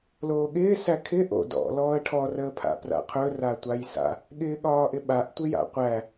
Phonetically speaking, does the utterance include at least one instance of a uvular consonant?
yes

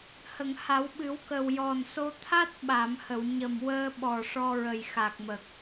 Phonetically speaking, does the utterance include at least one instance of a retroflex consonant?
yes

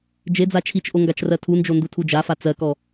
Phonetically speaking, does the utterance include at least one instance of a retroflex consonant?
no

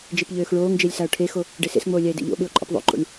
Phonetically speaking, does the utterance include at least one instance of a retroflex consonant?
yes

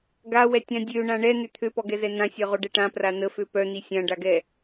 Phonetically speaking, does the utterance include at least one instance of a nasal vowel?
yes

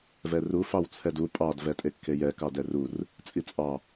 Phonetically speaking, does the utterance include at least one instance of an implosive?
no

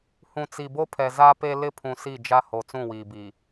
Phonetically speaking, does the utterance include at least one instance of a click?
no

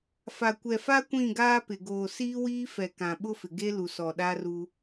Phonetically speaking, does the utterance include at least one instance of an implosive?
yes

